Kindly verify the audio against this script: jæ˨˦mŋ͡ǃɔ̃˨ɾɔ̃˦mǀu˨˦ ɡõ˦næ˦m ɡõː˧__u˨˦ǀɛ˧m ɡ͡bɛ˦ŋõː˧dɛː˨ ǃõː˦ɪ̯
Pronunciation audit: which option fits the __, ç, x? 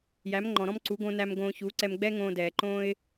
ç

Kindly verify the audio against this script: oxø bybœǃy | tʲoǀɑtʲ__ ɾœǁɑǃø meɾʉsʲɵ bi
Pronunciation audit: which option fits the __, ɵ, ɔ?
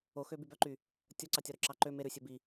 ɔ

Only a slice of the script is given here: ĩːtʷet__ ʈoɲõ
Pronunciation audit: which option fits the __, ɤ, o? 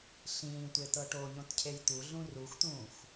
ɤ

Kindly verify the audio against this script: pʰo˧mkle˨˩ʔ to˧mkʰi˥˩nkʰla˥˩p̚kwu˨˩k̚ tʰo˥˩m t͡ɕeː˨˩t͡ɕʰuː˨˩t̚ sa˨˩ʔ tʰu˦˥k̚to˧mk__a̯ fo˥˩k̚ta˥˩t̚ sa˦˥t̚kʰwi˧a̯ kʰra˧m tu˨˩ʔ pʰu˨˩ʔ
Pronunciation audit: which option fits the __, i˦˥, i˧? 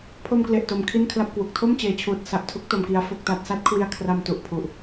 i˧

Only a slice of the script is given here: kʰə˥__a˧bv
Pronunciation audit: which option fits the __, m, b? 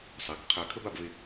b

